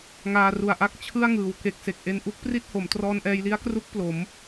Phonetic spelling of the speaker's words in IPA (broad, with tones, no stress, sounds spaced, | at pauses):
ŋ aː˧ r u˨˩ a̯ ʔ a˥˩ k̚ t͡ɕʰ ɯ˥˩ a̯ ŋ ɯː˩˦ w k e˨˩ k̚ s e˨˩ k̚ ʔ e˧ n ʔ u˦˥ k̚ p r i˥˩ t̚ h o˩˦ m t r ɔː˧ n ʔ ɛː˧ j l i˦˥ a̯ k r u˦˥ k̚ p l o˩˦ m